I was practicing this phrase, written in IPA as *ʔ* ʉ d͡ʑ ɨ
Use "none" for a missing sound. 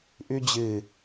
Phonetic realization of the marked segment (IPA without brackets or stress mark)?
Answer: ʔ